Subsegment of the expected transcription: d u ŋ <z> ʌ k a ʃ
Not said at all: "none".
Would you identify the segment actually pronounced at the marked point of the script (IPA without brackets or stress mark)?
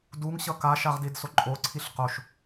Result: ɕ